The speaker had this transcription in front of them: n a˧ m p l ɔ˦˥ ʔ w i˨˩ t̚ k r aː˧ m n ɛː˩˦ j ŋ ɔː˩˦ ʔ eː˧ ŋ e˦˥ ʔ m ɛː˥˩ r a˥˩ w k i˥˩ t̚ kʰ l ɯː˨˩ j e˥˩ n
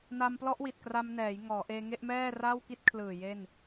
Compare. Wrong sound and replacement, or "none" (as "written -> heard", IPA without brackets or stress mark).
aː˧ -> a˧